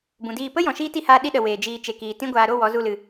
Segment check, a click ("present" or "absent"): absent